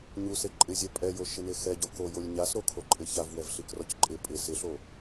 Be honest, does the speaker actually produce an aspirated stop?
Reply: yes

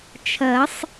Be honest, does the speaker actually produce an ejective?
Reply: no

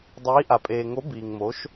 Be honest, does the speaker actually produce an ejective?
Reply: yes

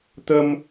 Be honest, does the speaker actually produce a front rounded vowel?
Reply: no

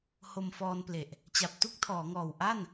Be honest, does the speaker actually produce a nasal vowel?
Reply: no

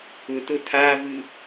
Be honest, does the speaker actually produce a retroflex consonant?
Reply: no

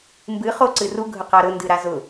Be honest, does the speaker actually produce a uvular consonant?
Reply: yes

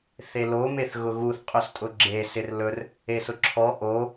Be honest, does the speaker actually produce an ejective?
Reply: yes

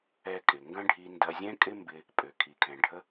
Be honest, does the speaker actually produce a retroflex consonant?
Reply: yes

